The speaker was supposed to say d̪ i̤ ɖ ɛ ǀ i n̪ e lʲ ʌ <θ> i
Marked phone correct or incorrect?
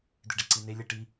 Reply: incorrect